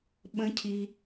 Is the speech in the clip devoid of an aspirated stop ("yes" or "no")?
no